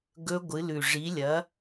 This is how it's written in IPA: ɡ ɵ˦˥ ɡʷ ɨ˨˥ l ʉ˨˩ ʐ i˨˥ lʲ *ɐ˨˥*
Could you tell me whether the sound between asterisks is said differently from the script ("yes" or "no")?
no